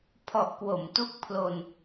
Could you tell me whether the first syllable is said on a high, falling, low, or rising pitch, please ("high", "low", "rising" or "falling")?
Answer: low